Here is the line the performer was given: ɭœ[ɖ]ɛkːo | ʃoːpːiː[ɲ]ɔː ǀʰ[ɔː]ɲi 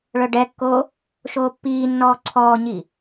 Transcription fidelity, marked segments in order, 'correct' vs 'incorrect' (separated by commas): correct, incorrect, correct